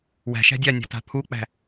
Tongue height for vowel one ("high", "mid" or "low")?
low